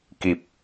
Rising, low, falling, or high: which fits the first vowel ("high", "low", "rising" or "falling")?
low